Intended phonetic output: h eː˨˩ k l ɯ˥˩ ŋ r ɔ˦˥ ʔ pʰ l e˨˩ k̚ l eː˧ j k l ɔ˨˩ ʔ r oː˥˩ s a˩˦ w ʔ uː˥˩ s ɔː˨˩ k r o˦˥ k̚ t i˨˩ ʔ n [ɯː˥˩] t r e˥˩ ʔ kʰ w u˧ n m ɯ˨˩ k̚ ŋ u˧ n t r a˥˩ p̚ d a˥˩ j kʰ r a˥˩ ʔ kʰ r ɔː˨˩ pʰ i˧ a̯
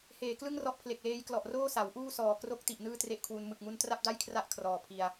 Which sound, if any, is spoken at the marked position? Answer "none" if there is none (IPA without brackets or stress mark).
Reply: ɯː˥˩